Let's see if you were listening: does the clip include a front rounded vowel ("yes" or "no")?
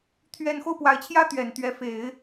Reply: no